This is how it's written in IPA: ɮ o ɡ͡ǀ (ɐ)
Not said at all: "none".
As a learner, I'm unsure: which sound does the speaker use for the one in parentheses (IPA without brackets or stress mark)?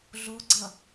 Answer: ɐ